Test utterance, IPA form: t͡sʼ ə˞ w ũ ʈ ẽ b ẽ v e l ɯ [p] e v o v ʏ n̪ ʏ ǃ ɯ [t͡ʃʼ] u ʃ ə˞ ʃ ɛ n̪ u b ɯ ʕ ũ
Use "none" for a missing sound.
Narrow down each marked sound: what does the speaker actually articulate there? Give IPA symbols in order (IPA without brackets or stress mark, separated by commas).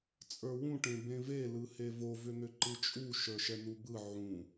h, t͡ʃʼ